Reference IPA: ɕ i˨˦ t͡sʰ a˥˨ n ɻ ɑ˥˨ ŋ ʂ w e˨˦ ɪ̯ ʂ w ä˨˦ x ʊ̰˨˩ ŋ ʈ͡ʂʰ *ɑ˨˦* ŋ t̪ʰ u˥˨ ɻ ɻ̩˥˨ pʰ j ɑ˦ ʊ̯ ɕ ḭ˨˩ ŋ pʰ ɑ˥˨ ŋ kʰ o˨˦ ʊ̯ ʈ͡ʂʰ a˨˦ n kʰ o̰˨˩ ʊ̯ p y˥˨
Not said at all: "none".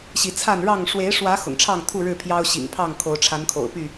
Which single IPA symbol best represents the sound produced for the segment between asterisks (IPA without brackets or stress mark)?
ɑ˥˨